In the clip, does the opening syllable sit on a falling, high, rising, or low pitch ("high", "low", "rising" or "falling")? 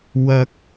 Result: high